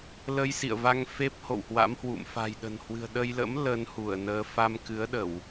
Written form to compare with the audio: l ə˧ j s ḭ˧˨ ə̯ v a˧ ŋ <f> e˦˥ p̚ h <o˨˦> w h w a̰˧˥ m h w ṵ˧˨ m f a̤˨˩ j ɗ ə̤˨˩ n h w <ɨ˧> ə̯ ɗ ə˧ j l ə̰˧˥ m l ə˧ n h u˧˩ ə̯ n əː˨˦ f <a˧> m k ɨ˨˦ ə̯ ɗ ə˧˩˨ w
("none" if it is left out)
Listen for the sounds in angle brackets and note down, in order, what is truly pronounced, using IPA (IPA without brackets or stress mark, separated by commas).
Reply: f, o̰˧˨, ɨ̤˨˩, a˧